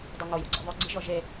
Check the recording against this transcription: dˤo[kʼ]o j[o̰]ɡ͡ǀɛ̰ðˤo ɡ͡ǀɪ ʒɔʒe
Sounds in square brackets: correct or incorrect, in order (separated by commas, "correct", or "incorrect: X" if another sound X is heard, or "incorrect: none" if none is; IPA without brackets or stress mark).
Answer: incorrect: ŋ, correct